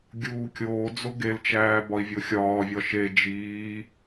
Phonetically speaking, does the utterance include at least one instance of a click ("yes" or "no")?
no